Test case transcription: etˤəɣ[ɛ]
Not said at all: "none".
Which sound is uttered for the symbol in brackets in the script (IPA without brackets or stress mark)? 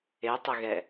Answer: ɛ